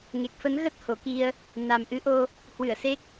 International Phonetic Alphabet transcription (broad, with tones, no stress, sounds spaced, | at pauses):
ŋ e˨˩ k̚ f ə˨˦ n ɣ ə˦˥ t̚ h o˨˩ k i˧ ə̯ | n a˨˩ m ʔ ɨ˨˦ ʔ o˧ | h w ɨ˧˩ ə̯ s e˦˥ k̚